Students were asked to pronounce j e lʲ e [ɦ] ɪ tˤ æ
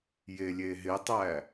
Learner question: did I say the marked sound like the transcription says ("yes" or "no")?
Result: yes